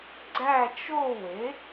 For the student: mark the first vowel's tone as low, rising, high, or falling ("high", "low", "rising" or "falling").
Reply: falling